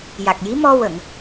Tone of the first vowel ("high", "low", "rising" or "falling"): low